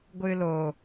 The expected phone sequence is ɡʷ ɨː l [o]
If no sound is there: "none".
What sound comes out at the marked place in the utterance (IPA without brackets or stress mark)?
o